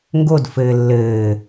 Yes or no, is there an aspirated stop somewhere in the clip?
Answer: no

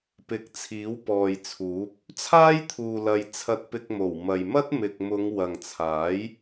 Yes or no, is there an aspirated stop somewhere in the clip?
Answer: yes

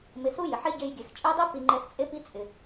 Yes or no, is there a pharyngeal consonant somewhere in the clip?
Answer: yes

